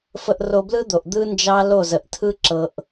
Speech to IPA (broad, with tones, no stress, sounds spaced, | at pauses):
f ə˧ ʔ r o˧ b l ɯ˦ d̪ o˨ ʔ d̪ ɯ˦ n d͡ʒ ɑ˦ l o˦˨ z ə˨ ʔ tʰ ɯ˦ ǁ ɤ˨ ʔ